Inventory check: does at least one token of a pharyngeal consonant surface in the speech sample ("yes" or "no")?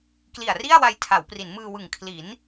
no